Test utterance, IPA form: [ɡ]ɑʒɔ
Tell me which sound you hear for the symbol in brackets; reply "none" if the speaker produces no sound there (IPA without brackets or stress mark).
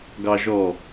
ɡ